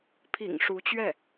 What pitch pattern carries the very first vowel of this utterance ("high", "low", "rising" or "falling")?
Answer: low